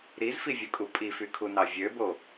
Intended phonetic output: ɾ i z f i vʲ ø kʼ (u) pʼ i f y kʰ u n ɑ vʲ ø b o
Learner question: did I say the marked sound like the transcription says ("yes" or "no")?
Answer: yes